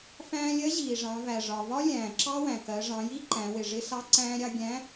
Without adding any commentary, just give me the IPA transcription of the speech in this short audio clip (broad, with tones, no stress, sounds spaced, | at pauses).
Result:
f æ̃ː˧ lʲ ɜ˧˥ ʑ iː˩ ʐ ɑ̃˩˧ v æ˩ ʐ ɒ˩ v ɒ˥ lʲ æ̃ː˩ ǁ ɑ˥ w æ̃˩ k ɜ˩˧ ʐ ɑ̃˩˧ j i˥ ǃ æ̃˩˧ w ɪ˩ ʐ ɪ˧ s ɑ˧ ǀ æ̃ː˧ ɾʲ ɑ˧ ɡʲ æ̃˧˥